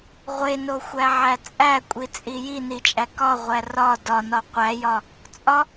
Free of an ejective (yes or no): no